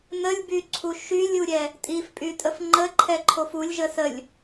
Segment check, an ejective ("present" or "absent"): present